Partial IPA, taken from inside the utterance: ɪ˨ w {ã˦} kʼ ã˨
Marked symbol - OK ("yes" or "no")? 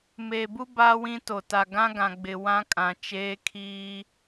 yes